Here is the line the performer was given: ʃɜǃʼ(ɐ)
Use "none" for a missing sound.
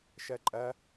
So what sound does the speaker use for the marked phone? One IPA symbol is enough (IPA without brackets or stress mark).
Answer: ɐ